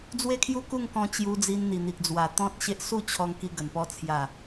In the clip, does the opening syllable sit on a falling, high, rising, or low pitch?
falling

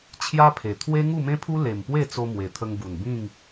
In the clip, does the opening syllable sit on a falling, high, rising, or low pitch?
high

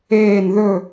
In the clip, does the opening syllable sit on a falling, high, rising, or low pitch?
falling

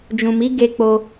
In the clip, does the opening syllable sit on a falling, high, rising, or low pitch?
low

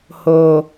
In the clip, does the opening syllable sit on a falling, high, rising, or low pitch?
low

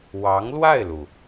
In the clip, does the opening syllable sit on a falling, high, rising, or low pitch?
rising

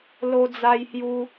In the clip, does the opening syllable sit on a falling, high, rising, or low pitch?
high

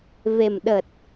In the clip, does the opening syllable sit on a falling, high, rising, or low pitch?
low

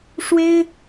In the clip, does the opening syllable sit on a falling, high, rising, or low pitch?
high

